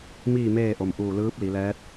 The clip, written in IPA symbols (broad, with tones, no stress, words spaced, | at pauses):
miː˥˨meː˥˨ʔo˩mʔuː˧˩ lɯː˧˥p̚ li˩˧lɛː˧˥t̚